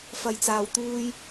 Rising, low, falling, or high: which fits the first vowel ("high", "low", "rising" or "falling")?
low